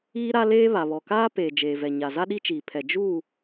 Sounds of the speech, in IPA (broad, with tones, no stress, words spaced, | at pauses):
iː˦ɾa˦leː˦ βa˨βɔ˨kaː˦peː˨ d͡ʒeː˨vɛ˨ɲa˨ za˦ɗi˦t͡ʃiː˨ pʰɛ˨ d͡ʒuː˦˨